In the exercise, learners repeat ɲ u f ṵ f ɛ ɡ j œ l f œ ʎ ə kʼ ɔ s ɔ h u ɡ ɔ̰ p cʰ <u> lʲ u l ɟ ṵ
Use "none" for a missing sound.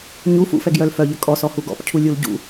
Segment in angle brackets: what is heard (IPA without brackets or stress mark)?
u